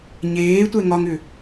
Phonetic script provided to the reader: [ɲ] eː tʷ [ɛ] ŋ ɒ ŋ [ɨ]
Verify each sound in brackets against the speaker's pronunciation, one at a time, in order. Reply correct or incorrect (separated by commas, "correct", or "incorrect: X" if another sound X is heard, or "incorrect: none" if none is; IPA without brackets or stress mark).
correct, correct, incorrect: ʏ